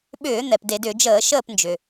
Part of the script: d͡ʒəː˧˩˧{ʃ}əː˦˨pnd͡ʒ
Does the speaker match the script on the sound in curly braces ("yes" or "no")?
yes